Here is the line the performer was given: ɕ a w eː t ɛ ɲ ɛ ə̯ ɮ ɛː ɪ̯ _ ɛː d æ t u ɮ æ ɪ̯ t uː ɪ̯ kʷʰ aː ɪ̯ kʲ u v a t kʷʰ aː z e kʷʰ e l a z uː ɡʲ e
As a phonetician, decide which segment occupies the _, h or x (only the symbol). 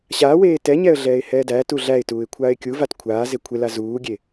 h